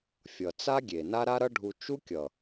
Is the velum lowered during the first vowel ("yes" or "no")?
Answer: no